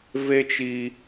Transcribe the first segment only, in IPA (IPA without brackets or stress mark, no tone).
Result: v